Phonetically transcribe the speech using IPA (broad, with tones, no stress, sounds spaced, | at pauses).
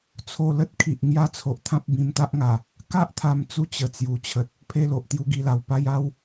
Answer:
t͡sʰ o˧ l ə˦ t̚ kʰ i˨ ʔ ŋ j a˥˧ t͡sʰ o˨ ʔ t̪ʰ ã˦ p̚ b ĩ˧ m t̪ a˦ ʔ ŋ a˨˩ | k a˦ ʔ t̪ʰ a˧ m t͡s u˧ t͡ɕ ə˨˩ t͡s j u˨˩ t͡ɕʰ ə˨ t̚ | pʰ e˧ l o˨ ʔ t̪ j u˧ ɡ i˧ l a˨˩ w p a˥˧ j a˥˧ w